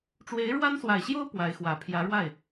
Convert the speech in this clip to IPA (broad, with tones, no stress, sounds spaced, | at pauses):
ʈ͡ʂ w e˧˥ ɪ̯ ɻ w a˥ n s w a˨˩ ɪ̯ ɕ j o˥ ʊ̯ p w a˧˥ ɪ̯ x w ä˨˩ pʰ j ä˧˥ ɻ w a˥˩ ɪ̯